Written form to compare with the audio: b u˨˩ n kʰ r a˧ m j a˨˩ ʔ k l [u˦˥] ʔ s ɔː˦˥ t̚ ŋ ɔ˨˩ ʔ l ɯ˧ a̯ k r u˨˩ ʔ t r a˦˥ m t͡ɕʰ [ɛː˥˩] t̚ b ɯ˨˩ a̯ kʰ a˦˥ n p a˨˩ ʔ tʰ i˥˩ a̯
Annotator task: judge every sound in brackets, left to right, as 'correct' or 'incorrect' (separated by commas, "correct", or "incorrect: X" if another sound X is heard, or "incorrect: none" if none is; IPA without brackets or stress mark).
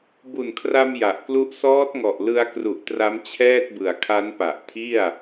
correct, correct